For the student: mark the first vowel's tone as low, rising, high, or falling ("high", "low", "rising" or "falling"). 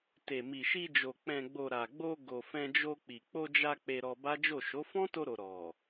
low